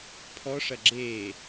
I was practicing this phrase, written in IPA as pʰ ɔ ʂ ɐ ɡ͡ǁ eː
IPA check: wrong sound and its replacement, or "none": none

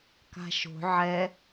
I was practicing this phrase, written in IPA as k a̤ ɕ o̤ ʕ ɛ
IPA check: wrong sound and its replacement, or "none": ɕ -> ʃ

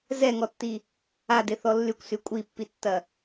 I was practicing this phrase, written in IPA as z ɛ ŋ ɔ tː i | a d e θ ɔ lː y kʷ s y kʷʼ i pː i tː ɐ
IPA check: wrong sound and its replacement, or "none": none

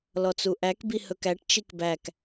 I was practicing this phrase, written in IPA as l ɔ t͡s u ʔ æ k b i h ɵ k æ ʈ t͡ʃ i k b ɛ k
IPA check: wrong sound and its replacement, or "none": ɛ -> æ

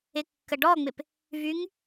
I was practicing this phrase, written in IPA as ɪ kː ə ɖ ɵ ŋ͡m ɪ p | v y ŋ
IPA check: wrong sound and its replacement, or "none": ɵ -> ɔ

